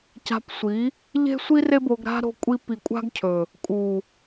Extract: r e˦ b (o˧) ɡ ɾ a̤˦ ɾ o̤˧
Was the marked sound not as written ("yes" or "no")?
no